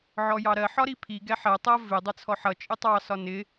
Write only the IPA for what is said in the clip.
ʕ ɔ j ɑ ɾ ɜ ħ ɒ ɾ i pʰ i ɡ ɛ ħ ɜ tˤ ʌ v ɪ dˤ ɛ t͡sʰ ɔ ħ ʌ t͡ʃʼ ɪ tˤ ɑ s ɒ n ɪ

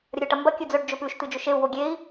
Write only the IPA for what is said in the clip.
ɾʲ ɐ ɾʲ o ʈ ɐ m b ɐ kʲ ɨ d͡z ɵ ɖ d͡ʒ ɵ p ʉ ʃ t̪ ɨ d͡ʒ ɵ ʃ e u̯ w o ɡʲ e i̯

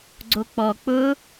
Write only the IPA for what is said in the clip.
ɡ͡ǀ o k͡p ɔ k͡p ʊ

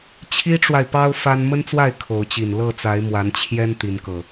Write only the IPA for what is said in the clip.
t͡ɕʰ i˦ ʈ͡ʂ w a˨ ɪ̯ p ɑ˦ ʊ̯ f a˦ n m ə˦ n t͡s w a˥˨ ɪ̯ kʰ o˨˦ ʊ̯ t͡ɕ i˨˩ n l ɤ˥˨ t͡s a˨˦ ɪ̯ m w a˨˦ n t͡ɕʰ j ɛ˦ n t̪ i˨˦ n k ɤ˨˩

